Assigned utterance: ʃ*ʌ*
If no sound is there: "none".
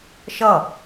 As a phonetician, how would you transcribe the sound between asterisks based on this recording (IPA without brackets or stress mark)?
ʌ